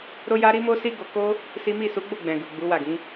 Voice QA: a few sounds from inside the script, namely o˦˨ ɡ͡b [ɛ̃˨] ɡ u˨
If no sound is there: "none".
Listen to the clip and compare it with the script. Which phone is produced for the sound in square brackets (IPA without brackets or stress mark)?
ɛ̃˨